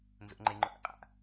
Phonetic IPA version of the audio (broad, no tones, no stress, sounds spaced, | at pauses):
n z o̰ ŋ͡ǃ e ŋ͡ǃ ʊ ʔ ḛ qʼ a̰